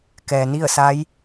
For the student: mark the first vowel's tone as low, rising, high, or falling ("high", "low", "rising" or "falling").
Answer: low